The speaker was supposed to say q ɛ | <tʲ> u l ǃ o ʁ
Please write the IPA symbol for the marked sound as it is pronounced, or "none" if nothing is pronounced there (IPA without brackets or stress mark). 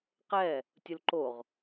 tʲ